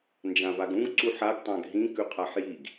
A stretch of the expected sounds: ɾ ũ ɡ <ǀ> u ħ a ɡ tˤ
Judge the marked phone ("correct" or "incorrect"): correct